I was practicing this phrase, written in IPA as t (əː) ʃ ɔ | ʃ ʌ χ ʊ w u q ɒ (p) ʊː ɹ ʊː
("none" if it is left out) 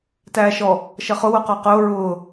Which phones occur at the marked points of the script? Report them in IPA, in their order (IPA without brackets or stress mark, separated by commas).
æː, q